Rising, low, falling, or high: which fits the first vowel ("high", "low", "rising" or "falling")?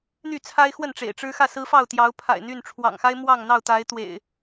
falling